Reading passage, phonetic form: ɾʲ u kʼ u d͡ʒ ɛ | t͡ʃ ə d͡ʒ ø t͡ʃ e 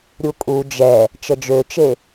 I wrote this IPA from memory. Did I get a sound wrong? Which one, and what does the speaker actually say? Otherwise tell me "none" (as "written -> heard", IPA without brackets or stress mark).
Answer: none